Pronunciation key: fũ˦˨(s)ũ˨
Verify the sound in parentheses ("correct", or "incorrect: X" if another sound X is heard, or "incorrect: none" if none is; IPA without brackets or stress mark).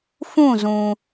incorrect: z